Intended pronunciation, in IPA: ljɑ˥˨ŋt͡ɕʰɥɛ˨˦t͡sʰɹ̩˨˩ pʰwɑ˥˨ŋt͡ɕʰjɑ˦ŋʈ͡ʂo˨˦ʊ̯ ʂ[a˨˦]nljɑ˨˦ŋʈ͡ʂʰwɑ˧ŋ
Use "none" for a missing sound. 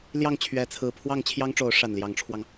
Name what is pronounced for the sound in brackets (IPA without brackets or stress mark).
a˨˩